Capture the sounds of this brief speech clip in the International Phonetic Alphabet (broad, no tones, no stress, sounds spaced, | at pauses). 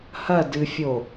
h ɐ d ɨ fʲ o